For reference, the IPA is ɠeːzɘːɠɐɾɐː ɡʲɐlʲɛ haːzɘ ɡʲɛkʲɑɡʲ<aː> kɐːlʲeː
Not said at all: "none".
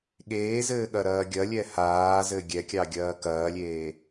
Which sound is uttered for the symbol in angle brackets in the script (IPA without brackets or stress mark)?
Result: ɐː